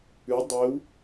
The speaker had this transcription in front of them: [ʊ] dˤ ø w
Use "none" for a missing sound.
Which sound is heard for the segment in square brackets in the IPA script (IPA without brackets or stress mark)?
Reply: ʉ